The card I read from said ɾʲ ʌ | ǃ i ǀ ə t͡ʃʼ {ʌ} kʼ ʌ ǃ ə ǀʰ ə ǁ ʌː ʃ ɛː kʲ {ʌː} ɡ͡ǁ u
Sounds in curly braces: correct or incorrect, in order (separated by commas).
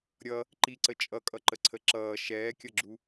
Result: correct, incorrect